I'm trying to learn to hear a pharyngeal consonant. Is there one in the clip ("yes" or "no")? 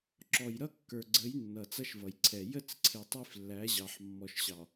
yes